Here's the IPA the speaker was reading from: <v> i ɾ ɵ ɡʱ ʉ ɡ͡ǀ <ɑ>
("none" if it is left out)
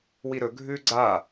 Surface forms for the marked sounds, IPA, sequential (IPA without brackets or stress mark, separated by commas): w, a